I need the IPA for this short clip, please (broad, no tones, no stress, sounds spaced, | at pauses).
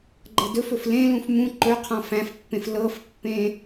ɡ͡ǃ ɤ d ɵ f ɵ f l ẽ l ũ f m ũ ǃ ɵ qʰ ɔ̃ f æ̃ f pː ẽ f l ɤ f pː ẽ